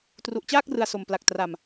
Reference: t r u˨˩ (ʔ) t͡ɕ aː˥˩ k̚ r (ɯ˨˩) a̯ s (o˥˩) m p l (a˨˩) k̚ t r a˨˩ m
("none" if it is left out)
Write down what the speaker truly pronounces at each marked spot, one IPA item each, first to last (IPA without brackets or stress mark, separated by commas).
ʔ, ɯ˨˩, o˨˩, a˨˩